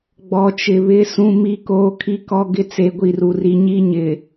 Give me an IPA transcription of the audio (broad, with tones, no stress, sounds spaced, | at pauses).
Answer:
ɡ͡b ɔ˨ t͡ʃ ɪ˨ β ɪ˦˨ s ũ˦ m i˦ k oː˦ kʰ i˦ k ɔ˦ ɡ ɪ˦ t͡s e˦ ɡʷ i˦˨ r u˨ r i˦ ɲ i˦ ɲ ɪ˨